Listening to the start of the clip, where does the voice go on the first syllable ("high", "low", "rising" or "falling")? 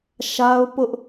high